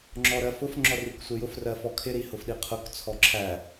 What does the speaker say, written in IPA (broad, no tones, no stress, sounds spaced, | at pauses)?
ŋ͡ǁ ɔ ɾ ɜ f ʊ f ŋ͡ǁ ɔ r i k sʷ ɪ j ʊ f r ɜ f ɔ kʰ ɪ ɾ i h ʊ f ɗ i qʰ ʊ k t͡sʰ ɔ ǁʰ æ